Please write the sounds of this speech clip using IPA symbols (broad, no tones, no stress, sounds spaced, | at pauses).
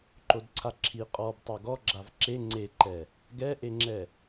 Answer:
ǃ o d ǀʰ a ǁʰ i qʼ ɔ b tˤ o ɡ ɔ ɡ͡ǁ a v ǁ e ŋ͡ǀ e ǃ ɛ | ɡ ɛ ʔ e ŋ͡ǁ ɛ